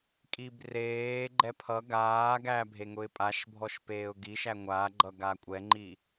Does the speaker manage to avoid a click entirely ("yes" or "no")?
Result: no